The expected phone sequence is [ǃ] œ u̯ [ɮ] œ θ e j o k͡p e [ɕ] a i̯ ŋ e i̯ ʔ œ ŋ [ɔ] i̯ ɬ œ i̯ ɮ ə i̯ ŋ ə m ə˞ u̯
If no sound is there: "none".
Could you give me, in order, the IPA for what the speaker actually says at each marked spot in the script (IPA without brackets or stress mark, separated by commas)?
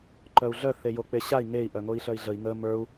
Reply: ǃ, ɮ, ɕ, o